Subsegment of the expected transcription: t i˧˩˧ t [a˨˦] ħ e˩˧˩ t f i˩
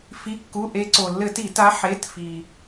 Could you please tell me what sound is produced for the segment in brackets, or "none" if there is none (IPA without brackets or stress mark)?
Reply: a˨˦